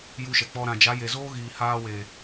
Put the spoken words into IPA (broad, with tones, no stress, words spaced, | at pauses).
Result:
ju˧ʃɛ˨k͡pɔ˧ ɾã˨d͡ʒa˨˦ je˨zoː˦ɣiː˨haː˧ weː˨